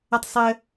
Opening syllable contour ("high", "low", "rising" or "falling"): high